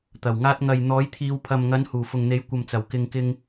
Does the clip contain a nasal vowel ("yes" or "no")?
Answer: no